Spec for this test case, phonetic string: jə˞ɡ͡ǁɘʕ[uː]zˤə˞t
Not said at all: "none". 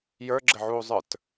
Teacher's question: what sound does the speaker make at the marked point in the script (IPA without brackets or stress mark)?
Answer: uː